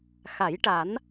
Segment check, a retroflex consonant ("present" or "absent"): present